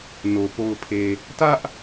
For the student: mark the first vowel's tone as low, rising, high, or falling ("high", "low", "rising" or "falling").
low